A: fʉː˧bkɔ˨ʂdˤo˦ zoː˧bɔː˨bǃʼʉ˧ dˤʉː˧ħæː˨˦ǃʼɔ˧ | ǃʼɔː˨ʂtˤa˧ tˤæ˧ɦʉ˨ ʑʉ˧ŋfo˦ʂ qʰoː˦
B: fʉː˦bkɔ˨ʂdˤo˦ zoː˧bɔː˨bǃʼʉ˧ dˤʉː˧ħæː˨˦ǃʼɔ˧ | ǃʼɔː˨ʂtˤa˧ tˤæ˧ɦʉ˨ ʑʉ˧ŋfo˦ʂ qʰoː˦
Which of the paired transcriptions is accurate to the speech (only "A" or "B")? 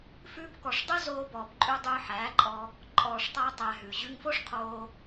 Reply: A